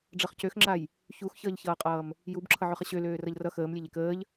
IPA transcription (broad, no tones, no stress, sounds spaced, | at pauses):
ɖ͡ʐ ʌ χ c ø x ŋ͡ǁ a j | ç u x ç ʌː ʎ ç ʌː qʼ ʌː m | j u b ǁʰ ʌ ʕ ø χ ə ɕ ø l øː r ʌ ʎ r ʌ x əː m lʲ e ʎ e k əː ʎ